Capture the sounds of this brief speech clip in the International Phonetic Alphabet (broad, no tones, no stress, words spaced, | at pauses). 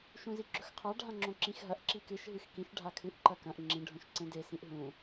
ʃũziɡ͡ǁɵxqʰa ɖʱãŋ͡ǁõǁĩxɦɐʔ ǁikɨʃ ɦɨxkĩʃ ɖʱakʰɨʔ ǃɐkɐ̃ʔ ŋ͡ǁĩ ɖʱõʃǀẽde sĩʔɦũ